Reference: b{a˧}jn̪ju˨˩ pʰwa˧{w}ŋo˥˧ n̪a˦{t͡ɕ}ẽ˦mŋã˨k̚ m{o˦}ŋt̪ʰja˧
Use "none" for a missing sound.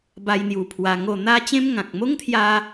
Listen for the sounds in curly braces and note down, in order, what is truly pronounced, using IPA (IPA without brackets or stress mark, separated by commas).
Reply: a˧, none, t͡ɕ, o˦